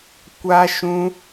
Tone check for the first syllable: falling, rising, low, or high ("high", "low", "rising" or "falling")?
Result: high